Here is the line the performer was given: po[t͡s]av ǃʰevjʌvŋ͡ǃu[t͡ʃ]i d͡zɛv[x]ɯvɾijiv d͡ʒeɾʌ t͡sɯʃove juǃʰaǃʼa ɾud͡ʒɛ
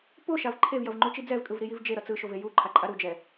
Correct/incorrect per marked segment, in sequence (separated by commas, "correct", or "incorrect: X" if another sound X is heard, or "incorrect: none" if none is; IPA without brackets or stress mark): incorrect: ʃ, correct, incorrect: kʼ